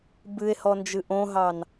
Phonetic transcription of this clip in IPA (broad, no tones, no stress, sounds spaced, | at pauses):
b ɨ e̯ h ɔ n d͡ʒ ɨ ʔ õ ɦ ɑ n